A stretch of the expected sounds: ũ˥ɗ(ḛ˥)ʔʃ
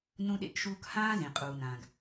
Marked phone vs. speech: correct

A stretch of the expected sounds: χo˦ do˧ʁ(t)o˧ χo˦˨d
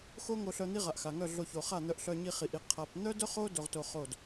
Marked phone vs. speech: correct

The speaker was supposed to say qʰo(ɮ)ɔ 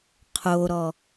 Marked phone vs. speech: incorrect: ɾ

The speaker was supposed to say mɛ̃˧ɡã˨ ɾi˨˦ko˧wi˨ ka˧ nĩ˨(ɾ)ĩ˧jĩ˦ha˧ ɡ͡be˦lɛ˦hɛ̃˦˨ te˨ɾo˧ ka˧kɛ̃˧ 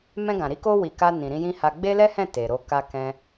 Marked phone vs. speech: correct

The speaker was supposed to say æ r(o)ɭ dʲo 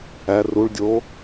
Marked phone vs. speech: incorrect: u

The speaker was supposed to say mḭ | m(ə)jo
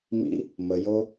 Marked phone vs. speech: correct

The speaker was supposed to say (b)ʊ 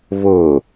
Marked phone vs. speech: incorrect: β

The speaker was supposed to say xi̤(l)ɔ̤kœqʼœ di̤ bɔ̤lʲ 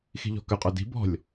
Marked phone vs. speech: incorrect: ʎ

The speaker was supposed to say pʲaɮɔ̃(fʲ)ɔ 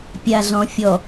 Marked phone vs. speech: correct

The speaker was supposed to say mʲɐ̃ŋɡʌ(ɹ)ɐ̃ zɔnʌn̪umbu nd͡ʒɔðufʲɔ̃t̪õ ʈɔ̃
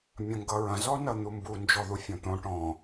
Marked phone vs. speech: correct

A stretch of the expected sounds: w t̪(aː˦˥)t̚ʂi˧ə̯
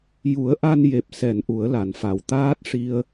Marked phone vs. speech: correct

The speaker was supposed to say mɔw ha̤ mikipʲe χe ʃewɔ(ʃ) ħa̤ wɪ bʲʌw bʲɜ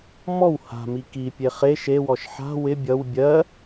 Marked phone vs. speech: correct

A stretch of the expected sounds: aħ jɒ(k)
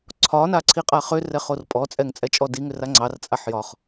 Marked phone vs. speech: incorrect: χ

